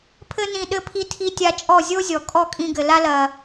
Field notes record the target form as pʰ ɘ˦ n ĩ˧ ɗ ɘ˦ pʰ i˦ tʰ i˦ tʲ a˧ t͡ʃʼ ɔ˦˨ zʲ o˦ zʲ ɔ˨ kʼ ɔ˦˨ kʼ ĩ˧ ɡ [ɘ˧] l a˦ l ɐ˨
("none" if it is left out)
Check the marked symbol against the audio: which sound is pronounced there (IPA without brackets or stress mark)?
ɘ˨